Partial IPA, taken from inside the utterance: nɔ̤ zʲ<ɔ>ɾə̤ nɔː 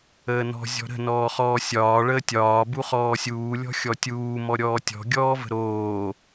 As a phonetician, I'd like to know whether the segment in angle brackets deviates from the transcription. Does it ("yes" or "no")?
yes